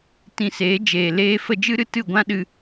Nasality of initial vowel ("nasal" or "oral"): nasal